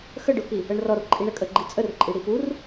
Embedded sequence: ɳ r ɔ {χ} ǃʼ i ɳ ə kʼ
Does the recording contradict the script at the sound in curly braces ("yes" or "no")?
yes